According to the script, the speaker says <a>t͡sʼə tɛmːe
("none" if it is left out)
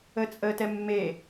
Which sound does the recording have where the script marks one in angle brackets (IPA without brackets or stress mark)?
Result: ə